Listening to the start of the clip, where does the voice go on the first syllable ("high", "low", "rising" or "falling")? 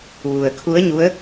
low